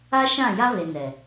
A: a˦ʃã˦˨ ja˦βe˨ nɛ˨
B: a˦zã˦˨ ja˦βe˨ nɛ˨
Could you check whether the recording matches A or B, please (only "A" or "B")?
A